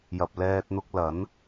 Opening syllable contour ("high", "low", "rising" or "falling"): low